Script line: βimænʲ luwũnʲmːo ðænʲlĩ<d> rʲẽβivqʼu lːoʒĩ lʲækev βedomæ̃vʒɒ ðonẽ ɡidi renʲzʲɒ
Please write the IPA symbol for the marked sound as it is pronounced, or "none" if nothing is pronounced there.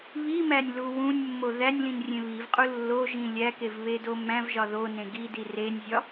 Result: n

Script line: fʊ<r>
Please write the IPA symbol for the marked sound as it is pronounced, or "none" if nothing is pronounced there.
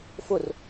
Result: r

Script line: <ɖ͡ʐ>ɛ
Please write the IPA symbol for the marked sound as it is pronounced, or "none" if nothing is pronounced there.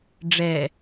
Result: ɖ͡ʐ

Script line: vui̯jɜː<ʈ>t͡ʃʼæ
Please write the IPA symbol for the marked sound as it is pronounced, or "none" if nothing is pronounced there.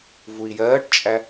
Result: ʈ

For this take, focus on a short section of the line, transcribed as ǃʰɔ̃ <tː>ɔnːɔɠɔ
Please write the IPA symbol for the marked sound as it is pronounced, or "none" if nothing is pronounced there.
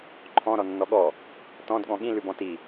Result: ɾ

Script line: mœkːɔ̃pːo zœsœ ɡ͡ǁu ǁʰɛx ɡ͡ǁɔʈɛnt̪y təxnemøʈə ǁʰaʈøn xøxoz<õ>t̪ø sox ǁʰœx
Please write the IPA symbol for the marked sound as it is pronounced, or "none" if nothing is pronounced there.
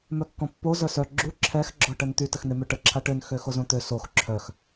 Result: õ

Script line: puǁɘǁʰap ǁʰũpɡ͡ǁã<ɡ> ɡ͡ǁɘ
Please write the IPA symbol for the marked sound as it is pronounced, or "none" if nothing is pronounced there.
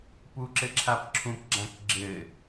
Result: k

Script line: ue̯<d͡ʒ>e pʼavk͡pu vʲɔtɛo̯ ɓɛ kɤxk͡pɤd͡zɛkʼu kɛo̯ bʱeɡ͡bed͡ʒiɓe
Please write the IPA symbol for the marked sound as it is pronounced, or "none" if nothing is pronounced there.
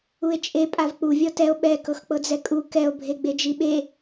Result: t͡ʃʼ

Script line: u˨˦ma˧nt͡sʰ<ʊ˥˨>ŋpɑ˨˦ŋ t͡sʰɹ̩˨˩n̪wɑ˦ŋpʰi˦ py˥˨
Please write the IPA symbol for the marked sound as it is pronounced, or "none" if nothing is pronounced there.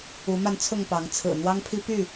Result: ʊ˥˨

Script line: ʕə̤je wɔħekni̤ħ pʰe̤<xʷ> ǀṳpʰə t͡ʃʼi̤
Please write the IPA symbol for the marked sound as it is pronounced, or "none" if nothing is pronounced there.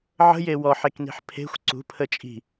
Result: xʷ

